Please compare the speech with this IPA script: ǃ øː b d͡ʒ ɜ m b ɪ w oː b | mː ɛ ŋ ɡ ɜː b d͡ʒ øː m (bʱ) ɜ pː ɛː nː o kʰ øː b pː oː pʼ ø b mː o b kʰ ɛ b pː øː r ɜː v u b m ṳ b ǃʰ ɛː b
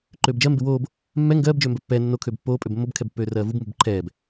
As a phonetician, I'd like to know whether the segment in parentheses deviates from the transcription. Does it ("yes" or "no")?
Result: yes